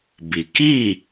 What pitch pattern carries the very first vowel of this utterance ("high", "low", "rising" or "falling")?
low